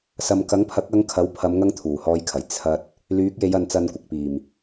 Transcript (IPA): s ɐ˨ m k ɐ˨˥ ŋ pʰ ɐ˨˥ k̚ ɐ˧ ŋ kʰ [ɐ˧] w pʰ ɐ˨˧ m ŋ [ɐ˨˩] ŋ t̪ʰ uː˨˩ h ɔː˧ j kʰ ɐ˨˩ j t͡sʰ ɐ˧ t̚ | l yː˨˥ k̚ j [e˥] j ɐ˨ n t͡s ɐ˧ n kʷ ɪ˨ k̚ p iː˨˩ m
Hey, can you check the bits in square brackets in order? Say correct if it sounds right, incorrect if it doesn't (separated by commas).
incorrect, incorrect, incorrect